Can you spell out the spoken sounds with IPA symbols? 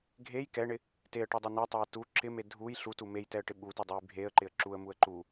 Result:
ɡʱej kɛɳɪ | teə̯ʈedˤɛ nɛtˤɛə̯ tu ǁɪme dʱuj ɬutu mejtɛə̯ʈɪ ɓutedˤuj bʱeə̯ǃɪə̯ ǁuə̯muə̯ ǃu

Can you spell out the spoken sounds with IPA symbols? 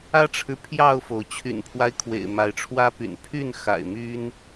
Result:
ä˦ʈ͡ʂʰɻ̩˨ pʰjɑ˥˨ʊ̯fo˩ʊ̯ t͡ɕʰy̰˨˩npʰwa˦ɪ̯kʰwḛ˨˩ɪ̯ ma˨˦ɪ̯ʈ͡ʂʰwä˦py̰˨˩n pʰy˥˨nxa̰˨˩ɪ̯my˦n

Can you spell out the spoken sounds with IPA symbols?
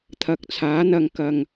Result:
t̪ʰɐ˨˥k̚t͡sʰaː˨˥ n̪ɐ˨ŋkɐ˨ŋ

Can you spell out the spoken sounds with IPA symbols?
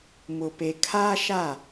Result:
mʊ˨pe˨kʰaː˦ ʃa˦˨

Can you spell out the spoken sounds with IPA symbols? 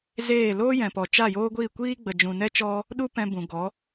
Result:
zeː˦˨ loː˦jɛ̃˨pɔ˨ t͡ʃa˦˨joː˦ɡʷiː˦˨ kʷiː˦ɡ͡bə˨ d͡ʒũ˨nɛ˦t͡ʃɔ˦ | ɗu˦pɛ̃˧ bũ˨ɡɔ˨˦

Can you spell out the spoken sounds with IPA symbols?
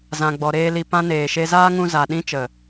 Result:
zã˨ɡ͡bɔ˨ɾeː˧ li˧ pã˧ neː˨ʃe˧zaː˦ŋũ˧ za˨ɗĩ˧t͡ʃə˨

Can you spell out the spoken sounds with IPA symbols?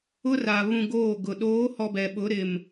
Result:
ʊ˦ra˨ βũ˨ ɡoː˦˨ɡʊ˨ ɗoː˨˦hɔ˨ bɛ˨ɓʊ˨˦ɾɪ˨m

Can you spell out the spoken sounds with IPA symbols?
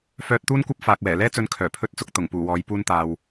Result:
fœː˧t̚t̪uː˥nkʷɐ˥p̚ faː˨k̚wɛː˨˩ lɛː˥t͡sɵ˧n kʰœː˨˩pʰɵ˥t̚t͡sʊ˧k̚ t̪ʊ˨˩ŋpuː˨˩wɔː˨˥j puː˧nt̪aː˨w

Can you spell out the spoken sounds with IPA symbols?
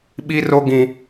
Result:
ɓi˦ro˦ ɡĩ˦

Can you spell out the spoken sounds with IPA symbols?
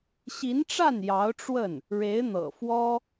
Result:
ɕi˧˥nʈ͡ʂa˥˩n jɑ˧˥ʊ̯ʈ͡ʂwə˥˩n | ɻe˧˥ɪ̯n̪ɤ̰˨˩ fwɔ˥

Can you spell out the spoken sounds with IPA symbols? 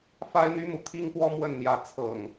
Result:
fa˦ɪ̯n̪y˦mu˨ t̪ʰi˦ŋ pwɔ˦mwə˥˨nn̪jä˨˦ t͡sʰɤ̰˨˩ŋ

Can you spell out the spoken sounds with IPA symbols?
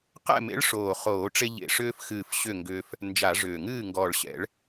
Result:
qɛ̰˥˩mḛ˨˥ɭʂoː˨˩ χoː˧˩˧ʈ͡ʂe˧ ʎḛ˨˩ʂʏː˧fxɨː˨˩f ɕʏ˥˩ŋɡʏː˧f | nd͡ʒa˧˩˧ʐʏː˨˩ŋɨː˥˩ ŋɡɔː˨˩ɭɕɛ̰˧˩˧ɭ

